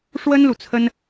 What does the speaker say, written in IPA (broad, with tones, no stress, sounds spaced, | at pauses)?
ʂ w ə˥ n l u˨ t͡sʰ ə˥ n